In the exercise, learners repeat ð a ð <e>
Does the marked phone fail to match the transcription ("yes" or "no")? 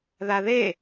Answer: no